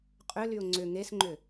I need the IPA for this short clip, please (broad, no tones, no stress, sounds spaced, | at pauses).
qʼ ʏ l y ʊ̯ ŋ͡ǀ ʏ ŋ e s ŋ͡ǃ ʏ